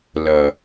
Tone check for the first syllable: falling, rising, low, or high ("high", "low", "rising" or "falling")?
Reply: low